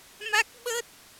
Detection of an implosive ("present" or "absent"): present